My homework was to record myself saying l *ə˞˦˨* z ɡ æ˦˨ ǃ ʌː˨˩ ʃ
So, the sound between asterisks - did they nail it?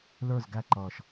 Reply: yes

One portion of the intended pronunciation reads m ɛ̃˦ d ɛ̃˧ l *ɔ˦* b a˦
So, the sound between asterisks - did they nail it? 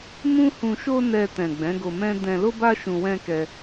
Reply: no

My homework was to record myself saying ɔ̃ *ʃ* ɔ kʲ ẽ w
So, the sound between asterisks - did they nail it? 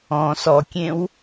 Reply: no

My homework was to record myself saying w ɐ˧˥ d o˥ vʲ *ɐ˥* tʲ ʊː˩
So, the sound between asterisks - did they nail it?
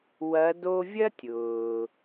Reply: yes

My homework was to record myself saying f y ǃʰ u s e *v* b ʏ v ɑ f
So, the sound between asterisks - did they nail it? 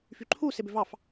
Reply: no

